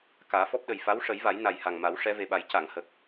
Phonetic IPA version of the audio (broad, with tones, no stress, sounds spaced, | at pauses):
k aː˨˩˦ f ɔ˦˥ p̚ ɗ ə˨˩ j f a˧˥ w ʂ ə˨˩˦ j v a˨˩˦ j n a˨˩ j h a˨˩ ŋ m a˨˩˦ w ʂ ɛ˧˥ v e˨˩ ɓ a˨˩˦ j c a˨˩˨ ŋ h ə˨˩ k̚